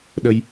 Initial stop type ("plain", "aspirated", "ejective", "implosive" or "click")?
implosive